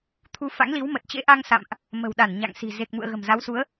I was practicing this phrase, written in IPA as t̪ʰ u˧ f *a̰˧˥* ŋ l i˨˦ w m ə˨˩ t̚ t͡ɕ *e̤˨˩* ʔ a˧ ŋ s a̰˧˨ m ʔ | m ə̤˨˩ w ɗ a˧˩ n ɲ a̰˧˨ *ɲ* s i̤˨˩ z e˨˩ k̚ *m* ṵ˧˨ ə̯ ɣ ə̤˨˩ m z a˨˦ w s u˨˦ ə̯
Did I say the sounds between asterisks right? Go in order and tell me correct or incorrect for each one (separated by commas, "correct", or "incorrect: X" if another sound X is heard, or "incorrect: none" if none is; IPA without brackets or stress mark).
correct, incorrect: ḛ˧˥, incorrect: ŋ, correct